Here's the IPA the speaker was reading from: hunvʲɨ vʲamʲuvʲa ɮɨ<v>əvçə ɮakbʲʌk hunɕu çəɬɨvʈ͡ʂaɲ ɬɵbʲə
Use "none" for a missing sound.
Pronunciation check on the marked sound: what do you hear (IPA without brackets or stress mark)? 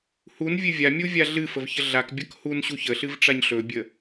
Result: f